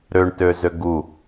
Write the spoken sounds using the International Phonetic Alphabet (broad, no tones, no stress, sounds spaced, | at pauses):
ɾ ø ɳ t ø z ø ɡ u